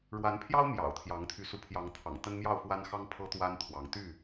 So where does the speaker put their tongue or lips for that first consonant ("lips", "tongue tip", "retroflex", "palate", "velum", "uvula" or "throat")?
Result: retroflex